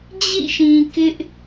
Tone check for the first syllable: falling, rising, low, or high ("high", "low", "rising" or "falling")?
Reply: falling